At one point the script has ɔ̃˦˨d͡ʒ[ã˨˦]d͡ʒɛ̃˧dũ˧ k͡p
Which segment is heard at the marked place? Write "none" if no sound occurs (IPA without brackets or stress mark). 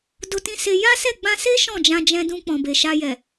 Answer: ã˧